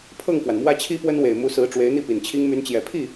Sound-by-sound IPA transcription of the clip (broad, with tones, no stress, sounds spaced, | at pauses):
pʰ ɤ˥˩ ŋ k w a˩ n m w ä˥ t͡ɕʰ i˥ p w ə˥ n w e˨˩ ɪ̯ m u˧˥ s ɹ̩˧˥ ʈ͡ʂ w e˧˥ ɪ̯ n̪ i˥˩ p i˨˩ n t͡ɕʰ i˥ ŋ m y˧˥ n t͡ɕ j ɛ˨˩ pʰ i˥˩